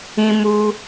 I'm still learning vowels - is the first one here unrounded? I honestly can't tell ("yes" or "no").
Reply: yes